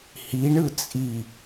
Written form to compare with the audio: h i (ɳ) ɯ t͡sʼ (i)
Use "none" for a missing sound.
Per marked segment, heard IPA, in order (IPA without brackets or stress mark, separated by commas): ɳ, i